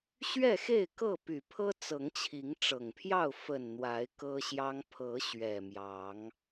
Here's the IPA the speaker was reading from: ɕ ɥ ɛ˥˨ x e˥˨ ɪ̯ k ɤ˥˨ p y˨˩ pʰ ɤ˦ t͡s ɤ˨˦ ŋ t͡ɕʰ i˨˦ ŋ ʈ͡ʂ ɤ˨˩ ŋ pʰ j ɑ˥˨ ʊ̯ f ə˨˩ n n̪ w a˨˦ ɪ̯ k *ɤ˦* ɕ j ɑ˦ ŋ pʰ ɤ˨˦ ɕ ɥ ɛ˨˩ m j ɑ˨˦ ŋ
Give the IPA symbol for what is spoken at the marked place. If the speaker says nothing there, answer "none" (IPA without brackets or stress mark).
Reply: ɤ˦